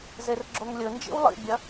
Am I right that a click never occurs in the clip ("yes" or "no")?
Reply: no